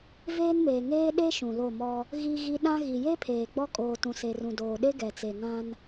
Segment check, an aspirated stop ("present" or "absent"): present